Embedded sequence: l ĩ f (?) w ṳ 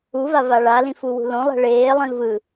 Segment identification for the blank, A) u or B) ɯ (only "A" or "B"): A